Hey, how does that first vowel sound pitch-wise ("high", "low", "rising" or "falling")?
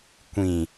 low